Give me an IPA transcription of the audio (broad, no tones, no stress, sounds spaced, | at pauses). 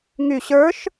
ŋ y ɕ ə˞ ʃ